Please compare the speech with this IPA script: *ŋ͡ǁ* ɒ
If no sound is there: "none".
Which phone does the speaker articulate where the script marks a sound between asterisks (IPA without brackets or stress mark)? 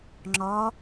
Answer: ŋ͡ǁ